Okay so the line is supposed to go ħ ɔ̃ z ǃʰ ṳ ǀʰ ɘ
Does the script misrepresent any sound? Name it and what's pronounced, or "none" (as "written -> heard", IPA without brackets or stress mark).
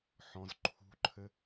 ǀʰ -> ǃʰ